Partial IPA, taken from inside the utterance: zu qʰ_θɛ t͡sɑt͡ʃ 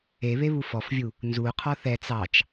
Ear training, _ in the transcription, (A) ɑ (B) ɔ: B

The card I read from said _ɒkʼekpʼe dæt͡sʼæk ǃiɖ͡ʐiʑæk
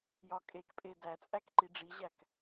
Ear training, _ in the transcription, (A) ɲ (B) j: B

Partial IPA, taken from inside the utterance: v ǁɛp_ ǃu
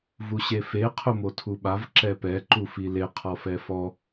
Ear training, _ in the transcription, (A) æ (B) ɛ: B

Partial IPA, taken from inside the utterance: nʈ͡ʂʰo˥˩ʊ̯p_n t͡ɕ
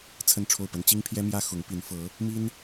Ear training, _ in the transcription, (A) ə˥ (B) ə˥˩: A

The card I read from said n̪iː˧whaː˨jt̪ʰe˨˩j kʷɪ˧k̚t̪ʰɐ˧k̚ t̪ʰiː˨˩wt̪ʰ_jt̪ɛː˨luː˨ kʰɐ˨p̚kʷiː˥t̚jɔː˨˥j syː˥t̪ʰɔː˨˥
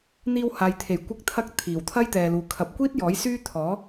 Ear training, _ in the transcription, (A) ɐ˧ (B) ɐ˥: B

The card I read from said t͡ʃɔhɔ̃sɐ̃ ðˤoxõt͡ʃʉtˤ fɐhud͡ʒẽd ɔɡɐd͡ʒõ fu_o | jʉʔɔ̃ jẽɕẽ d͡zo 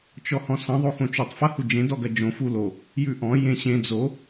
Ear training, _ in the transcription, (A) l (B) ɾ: A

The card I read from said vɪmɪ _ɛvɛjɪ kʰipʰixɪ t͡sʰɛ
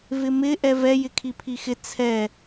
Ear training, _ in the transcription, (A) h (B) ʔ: B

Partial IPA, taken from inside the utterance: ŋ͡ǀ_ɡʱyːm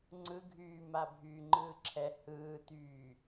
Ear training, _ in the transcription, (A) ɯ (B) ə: A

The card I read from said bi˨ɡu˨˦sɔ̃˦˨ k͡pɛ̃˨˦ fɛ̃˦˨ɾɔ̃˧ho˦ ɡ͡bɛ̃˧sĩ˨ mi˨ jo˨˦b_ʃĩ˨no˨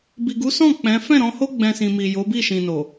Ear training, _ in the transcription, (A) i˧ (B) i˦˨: B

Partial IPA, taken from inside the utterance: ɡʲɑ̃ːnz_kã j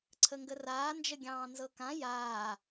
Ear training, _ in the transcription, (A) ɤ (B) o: A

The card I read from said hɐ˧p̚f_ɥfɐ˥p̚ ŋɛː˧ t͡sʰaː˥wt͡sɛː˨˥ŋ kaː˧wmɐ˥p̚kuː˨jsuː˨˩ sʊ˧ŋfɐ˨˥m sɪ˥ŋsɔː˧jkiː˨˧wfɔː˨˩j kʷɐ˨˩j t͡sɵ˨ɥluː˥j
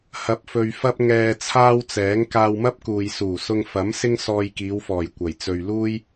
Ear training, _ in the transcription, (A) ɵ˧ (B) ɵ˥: A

